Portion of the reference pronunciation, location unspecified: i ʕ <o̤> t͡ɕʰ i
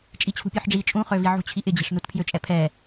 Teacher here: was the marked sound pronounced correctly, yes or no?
no